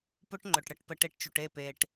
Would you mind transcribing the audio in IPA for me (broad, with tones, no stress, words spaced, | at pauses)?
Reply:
pʊ˦ʈŋ͡ǃʊ˨ʈɽə˦˨ʈpə˧ ʈe˧ʈt͡ʃu˨ʈe˦˨ pe˨ʈ